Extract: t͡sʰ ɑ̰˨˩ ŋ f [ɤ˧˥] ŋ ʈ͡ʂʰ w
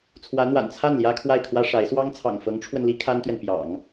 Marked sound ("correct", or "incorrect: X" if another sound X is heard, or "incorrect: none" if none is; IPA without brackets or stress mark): correct